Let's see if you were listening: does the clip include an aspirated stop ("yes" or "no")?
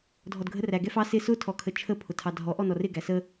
yes